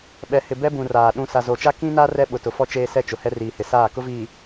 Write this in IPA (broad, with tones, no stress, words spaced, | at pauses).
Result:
ɓɛ˨hɪ˨ bɛ˦bũ˨raː˨ ɗũ˨ sa˨zo˨t͡ʃa˦ kĩ˦na˦ rɛ˦ɓʊ˨ tʊ˨fɔ˦ t͡ʃeː˦sɛ˦t͡ʃʊ˨hɛ˦ riː˨hɪ˨saː˦˨ kʊ˦viː˨